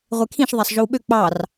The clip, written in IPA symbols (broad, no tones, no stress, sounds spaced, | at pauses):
ʁʷ e kʰ ĩ ʃ ðˤ æ sˤ ʒ o w ɓ ø k͡p ɑ r